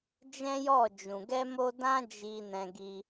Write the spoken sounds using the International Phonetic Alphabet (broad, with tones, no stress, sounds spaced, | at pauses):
d͡ʒ ɛ̃˦ j ɔ˦˨ d͡ʒ ũ˨ ɡ ɛ˧ m o˧ d ã˦ d͡ʒ i˧ n ɛ̃˧ ɡ i˧